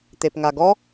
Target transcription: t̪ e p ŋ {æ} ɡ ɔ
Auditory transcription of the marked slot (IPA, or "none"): a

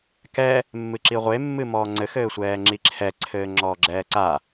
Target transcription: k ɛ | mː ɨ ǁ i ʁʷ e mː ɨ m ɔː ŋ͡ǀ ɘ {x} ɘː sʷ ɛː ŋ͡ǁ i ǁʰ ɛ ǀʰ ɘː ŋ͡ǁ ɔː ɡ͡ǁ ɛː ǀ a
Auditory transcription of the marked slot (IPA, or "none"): x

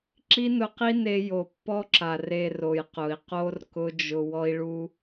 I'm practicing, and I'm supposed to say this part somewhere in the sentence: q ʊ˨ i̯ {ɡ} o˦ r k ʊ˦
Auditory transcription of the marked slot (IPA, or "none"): q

